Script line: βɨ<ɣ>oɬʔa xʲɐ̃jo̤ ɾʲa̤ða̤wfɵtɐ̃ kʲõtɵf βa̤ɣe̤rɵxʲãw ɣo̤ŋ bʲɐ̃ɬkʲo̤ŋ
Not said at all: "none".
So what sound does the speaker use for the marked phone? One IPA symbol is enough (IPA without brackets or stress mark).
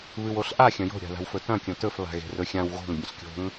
w